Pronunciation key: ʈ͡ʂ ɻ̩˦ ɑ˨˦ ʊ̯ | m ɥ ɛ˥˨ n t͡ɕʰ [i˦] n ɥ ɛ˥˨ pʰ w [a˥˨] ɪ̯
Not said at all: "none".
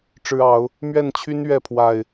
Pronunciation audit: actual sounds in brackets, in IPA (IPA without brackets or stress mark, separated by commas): y˦, a˨˩